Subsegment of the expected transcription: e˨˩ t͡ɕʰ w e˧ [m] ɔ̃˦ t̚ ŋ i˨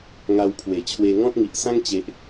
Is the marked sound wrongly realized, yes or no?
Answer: yes